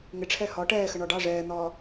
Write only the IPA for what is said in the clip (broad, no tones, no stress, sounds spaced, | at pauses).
ŋ ɪ ʈ͡ʂʰ ɛ h ɒ ʈ ɛː x ə ɳ ɒ ɖ ɑ ʐ ɛː n̪ ɒː